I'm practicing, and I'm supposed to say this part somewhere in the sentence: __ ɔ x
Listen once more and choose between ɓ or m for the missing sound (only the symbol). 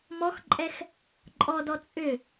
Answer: m